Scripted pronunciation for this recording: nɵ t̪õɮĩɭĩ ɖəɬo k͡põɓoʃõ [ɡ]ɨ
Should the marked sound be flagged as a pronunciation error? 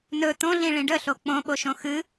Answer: yes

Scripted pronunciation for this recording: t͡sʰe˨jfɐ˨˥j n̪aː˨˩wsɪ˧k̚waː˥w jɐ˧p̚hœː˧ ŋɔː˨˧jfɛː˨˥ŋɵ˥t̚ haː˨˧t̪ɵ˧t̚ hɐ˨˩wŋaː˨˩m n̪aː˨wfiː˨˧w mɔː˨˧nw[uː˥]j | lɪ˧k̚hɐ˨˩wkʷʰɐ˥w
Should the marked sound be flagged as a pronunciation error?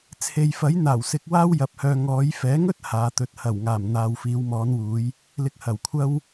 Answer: yes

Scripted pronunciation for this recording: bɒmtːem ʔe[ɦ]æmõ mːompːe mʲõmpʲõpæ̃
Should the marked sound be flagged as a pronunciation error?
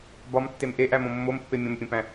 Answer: yes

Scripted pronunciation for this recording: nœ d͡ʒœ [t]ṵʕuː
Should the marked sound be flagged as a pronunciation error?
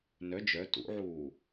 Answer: no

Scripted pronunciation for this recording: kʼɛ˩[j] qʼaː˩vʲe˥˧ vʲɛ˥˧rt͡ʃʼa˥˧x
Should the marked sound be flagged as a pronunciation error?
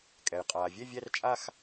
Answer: no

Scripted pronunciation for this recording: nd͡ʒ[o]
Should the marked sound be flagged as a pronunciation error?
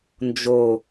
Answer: no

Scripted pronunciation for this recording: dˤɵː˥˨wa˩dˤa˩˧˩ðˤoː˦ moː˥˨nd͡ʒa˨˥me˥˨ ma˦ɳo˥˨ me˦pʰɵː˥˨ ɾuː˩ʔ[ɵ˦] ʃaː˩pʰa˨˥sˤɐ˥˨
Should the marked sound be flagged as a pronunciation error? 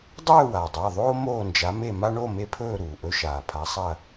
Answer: no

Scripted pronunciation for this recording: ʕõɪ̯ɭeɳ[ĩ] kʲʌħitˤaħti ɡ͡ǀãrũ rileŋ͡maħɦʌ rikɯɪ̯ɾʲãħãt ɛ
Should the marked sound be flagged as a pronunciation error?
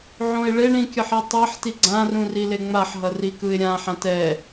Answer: no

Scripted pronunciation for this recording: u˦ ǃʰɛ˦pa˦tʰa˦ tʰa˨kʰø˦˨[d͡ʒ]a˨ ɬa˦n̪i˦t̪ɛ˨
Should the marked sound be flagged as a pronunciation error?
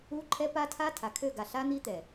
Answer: yes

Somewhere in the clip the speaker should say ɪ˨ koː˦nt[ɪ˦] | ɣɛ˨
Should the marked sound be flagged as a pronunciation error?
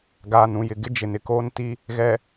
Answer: yes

